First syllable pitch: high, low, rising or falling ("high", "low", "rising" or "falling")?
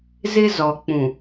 high